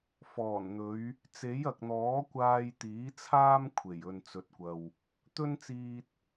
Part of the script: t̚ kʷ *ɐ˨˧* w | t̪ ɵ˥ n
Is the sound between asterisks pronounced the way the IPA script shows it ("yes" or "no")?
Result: no